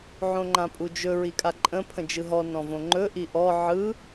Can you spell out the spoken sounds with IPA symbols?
ʕõŋ͡ǃãpʼud͡ʒɵ ɹikʼaǃʼə̃ pʰə̃d͡ʒɯɦɔ nɔ̃võŋ͡ǃɵ ʔiʔɔ ʕɯ

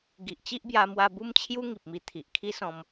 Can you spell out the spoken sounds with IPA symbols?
ɡi˨ʔt͡ɕi˦ʔbja˧ mwa˧bu˦mt͡ɕʰju˦ ŋi˨p̚mi˧ t̪ʰi˨ʔkʰi˦sɔ̃˧m

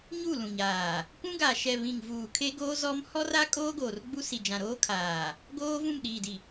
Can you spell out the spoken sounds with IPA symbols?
ɲu˦˨lũ˨ɲaː˨ | kũ˦ɡaː˨ʃɛ˨ βĩ˨ŋvuː˨ kʰe˦ɡoː˦zɔ˦m hɔ˦ra˦ kʼoː˦ɡoː˨rɡ͡bu˦ si˨d͡ʒã˨ɾoː˦kʰaː˨ | ɡoː˦vũ˦˨m ɗiː˨di˨

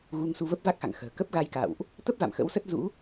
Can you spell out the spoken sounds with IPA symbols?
ɣu˧ŋsu˧və˦˥p̚ va˦˥k̚xa̰˧˨ŋxə̤ː˨˩ kə˦˥p̚ɣa˧jka̰˧˨wʔ | t̪ə˦˥p̚va̰˧˨m xə̰˧˥wsə˦˥t̚zṵ˧˥

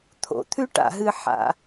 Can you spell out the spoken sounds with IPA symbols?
t̪ʰo̰˩t̪ʰʉ˥ʈa̰˩ɦɨ˧ ħa̰˩

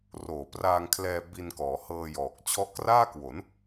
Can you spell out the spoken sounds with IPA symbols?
roː˨˩praː˧ŋkʰlɛː˧ bi˧nkɔː˩˦ hɤː˧jɔː˨˩k̚ t͡ɕʰɔ˦˥ʔkraː˥˩kwo˩˦n

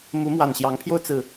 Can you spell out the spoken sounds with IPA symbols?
mu˧˥mwa˨˩nɕjɑ˧˥ŋpʰjo˥˧ʊ̯ t͡sɹ̩˥˩

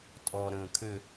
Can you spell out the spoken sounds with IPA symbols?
tʼɔ ɾə̃ːkʰʏ

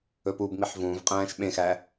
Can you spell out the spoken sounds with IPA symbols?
ɵpubmiħ vũːvqʼæ̃ːʃ ɓẽxæ

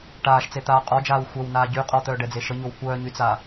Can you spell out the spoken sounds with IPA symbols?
ʈaːʃt͡set̪aː qʼɔd͡ʒaːw xʷœwnaː ɟy qʼɔt̪œːɖɛd͡ze ʃəɲow kʷœːɲyt͡sa

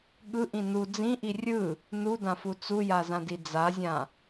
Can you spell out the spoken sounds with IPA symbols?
ɠɯʔĩ nu d͡zĩʔi rʲɯ | nudãfu t͡sujazãdi d͡zazʲã

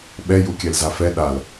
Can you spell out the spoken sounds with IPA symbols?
ɓɛ jukʲɛlzafɛ ɗal

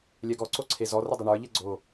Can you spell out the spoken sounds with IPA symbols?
lʲɛɡɔ ǀoǀʰezɔ rədˤɛɳə˞ ʎɛɡ͡ǀo

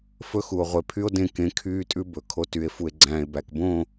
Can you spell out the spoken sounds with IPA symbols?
fɵ˦xu˨o̯ ʁʷe˨pʰy˦o̯dẽ˦˨ kẽ˨˦ kʰyː˦tʼʉ˦ bɵ˨kʰo˦ ty˨e̯ fu˨e̯ɡ͡ǀæ̃ː˨e̯bæ˨kbõ˦˨

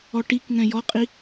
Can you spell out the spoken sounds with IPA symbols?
ɔʈikŋɛ̃ jɔqʼi

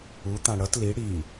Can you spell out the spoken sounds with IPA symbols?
ut̪ã ɽʌt li ɽi

